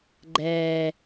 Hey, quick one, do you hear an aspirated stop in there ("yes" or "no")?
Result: no